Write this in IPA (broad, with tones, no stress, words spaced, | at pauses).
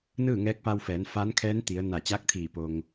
nɯː˥˨ŋɛː˧˥k̚pa˧wfɛː˩˧n fa˧˥nkʰɛː˧˥nt̪i˩˧ə̯ na˧˩t͡ɕaː˧˥k̚t̪ʰiː˧˩ po˩ŋ